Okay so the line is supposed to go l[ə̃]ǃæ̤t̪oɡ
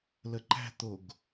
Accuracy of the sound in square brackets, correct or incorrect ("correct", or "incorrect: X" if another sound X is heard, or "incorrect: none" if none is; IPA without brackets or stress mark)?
incorrect: ə